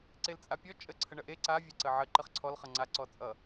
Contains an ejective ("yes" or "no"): yes